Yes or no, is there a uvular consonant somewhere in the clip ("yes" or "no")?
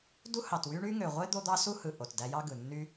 yes